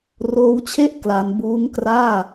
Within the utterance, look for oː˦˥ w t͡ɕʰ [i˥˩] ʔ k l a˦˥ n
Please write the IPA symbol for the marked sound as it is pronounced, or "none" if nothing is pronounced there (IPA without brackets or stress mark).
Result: e˥˩